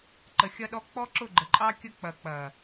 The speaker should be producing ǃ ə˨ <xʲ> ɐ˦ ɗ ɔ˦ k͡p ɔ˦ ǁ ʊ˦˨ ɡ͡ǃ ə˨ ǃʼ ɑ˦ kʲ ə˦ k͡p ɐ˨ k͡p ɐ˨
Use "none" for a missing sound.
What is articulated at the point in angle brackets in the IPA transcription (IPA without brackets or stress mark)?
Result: xʲ